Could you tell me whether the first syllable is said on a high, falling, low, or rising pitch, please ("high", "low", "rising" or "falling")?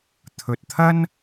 low